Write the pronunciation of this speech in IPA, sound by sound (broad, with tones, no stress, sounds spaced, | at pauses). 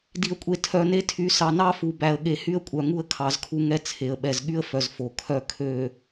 d i˨ ə̯ kʷʼ e˨ tʰ œ˨ n e˦ tʰ y˨ s ɑ˨ n ɑ˦ f u˨ b æ˨ ə̯ ɠ e˨ h y˦ ə̯ kʷʼ œ˨ ŋ u˦ ə̯ kʰ ɑ˨˦ z kʰ u˦ ŋ ɛ˦ t͡sʰ e˨ ə̯ ɓ ɛ˨ z ɠ y˦ ə̯ f œ˨ z f o˨ kʰ œ˦ kʰ ø˨